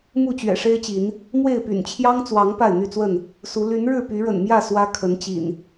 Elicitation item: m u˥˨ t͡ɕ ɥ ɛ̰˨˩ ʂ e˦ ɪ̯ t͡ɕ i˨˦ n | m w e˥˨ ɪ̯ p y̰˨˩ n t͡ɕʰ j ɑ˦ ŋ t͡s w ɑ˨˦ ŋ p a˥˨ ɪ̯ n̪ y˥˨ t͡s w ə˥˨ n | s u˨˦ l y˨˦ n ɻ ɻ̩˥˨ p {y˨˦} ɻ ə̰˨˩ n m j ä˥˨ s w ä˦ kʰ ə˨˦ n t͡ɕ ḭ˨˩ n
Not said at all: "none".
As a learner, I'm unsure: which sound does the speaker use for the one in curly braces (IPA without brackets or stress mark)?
y˨˦